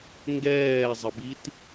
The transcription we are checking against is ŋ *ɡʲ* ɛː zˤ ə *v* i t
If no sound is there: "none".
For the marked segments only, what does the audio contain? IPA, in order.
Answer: ɡ, b

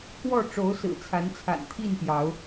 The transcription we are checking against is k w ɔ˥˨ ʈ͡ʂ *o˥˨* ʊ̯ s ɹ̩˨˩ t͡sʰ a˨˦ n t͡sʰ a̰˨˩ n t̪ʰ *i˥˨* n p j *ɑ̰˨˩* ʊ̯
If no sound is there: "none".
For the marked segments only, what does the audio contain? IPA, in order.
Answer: o˨˦, i˥˨, ɑ˨˦

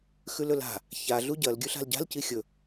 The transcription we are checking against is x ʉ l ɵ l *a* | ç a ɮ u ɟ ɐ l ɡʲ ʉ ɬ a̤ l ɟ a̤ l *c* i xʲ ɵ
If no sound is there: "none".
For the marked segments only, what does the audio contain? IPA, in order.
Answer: a̤, c

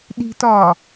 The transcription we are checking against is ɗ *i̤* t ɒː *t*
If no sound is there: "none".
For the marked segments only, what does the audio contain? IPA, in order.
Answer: i̤, none

